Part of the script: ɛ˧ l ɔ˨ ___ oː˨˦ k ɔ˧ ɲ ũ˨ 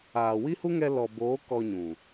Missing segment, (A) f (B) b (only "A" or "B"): B